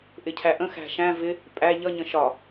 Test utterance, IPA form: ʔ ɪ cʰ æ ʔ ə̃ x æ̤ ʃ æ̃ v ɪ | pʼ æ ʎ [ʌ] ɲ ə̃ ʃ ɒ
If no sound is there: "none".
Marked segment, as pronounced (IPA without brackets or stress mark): ʌ